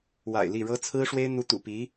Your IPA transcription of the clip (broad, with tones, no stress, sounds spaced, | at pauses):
w a̰˨˩ ɪ̯ l i˥˩ ɻ ɤ˥ t͡sʰ ɹ̩˥ ʂ w e˥ ɪ̯ n̪ u˧˥ t̪ ṵ˨˩ p i˧˥